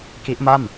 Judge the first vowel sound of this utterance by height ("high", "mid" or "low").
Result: high